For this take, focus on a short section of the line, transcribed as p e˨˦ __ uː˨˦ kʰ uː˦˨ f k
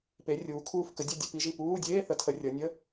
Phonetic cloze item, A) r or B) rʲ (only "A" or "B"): B